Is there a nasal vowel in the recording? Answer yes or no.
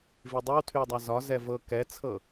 no